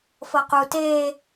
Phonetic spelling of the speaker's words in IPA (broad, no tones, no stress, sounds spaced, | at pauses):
f ɤ q u t eː